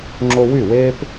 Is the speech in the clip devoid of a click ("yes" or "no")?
no